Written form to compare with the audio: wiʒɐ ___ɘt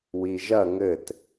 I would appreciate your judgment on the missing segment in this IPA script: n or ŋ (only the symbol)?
ŋ